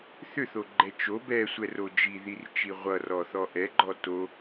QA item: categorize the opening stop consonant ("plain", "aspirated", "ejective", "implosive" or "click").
click